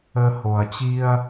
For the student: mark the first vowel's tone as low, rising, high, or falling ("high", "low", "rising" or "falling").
low